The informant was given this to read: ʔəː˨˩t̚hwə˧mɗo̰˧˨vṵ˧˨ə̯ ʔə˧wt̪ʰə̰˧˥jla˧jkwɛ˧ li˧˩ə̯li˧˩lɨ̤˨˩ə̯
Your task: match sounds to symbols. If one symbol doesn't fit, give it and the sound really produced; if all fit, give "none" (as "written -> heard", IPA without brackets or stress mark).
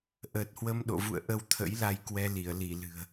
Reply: none